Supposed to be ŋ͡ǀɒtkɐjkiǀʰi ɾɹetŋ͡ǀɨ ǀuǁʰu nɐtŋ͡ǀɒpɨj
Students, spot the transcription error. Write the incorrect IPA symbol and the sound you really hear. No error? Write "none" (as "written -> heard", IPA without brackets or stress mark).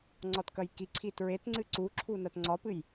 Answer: ɾ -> t